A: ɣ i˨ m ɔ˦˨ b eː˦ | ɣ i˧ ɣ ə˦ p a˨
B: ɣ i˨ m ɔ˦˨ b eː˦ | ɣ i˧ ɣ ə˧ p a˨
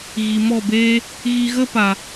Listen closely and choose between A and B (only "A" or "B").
A